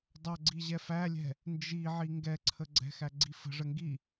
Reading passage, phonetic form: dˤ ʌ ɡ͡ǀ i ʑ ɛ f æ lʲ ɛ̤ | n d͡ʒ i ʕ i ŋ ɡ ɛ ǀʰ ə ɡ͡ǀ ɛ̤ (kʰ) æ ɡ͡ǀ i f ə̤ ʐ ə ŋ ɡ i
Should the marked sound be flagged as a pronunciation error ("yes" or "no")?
yes